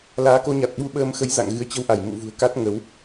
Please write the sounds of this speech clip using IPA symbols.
l aː˨˦ k o˧ ɲ a˨˩ t̚ ɓ u˧ ɓ əː˧ m x ə˨˦ j z a̰˧˨ ŋ ɣ ɨ˨˦ ə̯ t͡ɕ ə˧ w ʔ a˧˩ j m ṵ˧˨ v ṳ˨˩ ə̯ k a˦˥ t̚ ŋ ə˨˦ w

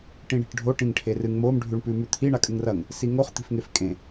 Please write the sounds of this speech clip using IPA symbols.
ʈ ĩ ɳ i̤ ʈ ɖʱ o ʈ ĩ ŋ ʈʰ e r ɨ ŋ m o m ɖʱ ʉ ɳ p ʉ m ʉ t̪ʰ i ɳ a kʼ ɨ ŋ r ɐ ŋ | s i ŋ o χ t̪ i̤ f ŋ e f kʼ ẽ

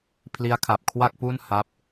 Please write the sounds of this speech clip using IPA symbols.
pʰ l i˦˥ a̯ kʰ a˨˩ p̚ kʰ w a˥˩ k̚ p u˥˩ n h a˦˥ p̚

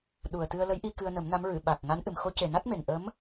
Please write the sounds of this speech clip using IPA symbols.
ɗ u˨˩ ə̯ t̪ ɨ˧ ə̯ l ə˧˥ j ʔ i˧ k ɨ˧ ə̯ n ə˨˩˦ m n a˧˥ m ɹ ɨ˨˩˨ ɓ a˨˩ k̚ ŋ a˧˥ n ʔ ɨ˨˩ m x o˧˥ c e˨˩ n a˦˥ t̚ m e˨˩ ŋ ʔ ə˧˥ m

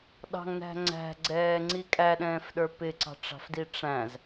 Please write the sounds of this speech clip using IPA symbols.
ɗ ɑ̤ ŋ n æ̤ ŋ͡ǀ æ̤ ɡ͡ǀ ɛː ŋ͡ǀ i kʼ æ ɗ ɛ̃ː f ɗ ə˞ p ɪ ǀ ɑ̤ ʈ͡ʂ ɑ̤ f d i ʈ͡ʂ æ̃ z

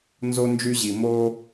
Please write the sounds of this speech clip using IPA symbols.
n z o˦ n d͡ʒ y˦ ʑ i˧ m oː˦

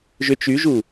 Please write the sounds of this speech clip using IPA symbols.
ʒ ʏ t͡ʃ y ʒ u

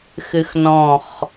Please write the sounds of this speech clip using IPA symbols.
x ɨ x n ɔ̃ χ

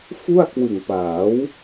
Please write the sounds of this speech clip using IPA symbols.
f u˥˩ a̯ k w ɯ˨˩ ŋ p aː˩˦ w

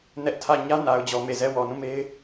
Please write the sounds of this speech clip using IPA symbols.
n ɛ˦ ʔ tʰ ä˦˨ ɲ ä˦ n a˨ ʊ̯ d͡ʑ ɔ˨ m e˨ z ɛ˦˨ w ɔ˨ n ũ˦˨ m e˦ ɪ̯

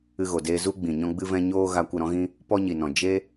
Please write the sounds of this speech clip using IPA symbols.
ɨ˧ ɣ o˨ d eː˧ z u˦ ɡ͡b ĩ˨ ɲ ɔ̃˦ ɡ͡b ɨ˦ v ɛ̃˦ ɲ oː˦ ɣ a˧ kʷ ə˦˨ ɾ ɔ̃˦ ɣ ĩ˦ | p ɔ˦ ɲ i˨ n ɔ̃˨ d͡ʒ e˦

